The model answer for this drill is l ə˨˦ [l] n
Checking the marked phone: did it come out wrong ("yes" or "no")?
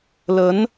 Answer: yes